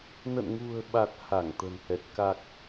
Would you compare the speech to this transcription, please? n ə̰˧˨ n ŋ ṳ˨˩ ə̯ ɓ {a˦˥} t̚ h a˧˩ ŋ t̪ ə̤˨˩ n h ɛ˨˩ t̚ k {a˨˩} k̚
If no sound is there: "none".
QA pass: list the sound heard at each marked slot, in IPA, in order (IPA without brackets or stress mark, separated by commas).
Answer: a˨˩, a˨˩